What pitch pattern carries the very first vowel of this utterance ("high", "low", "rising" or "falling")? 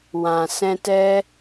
low